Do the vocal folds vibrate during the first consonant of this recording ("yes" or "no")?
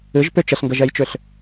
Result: yes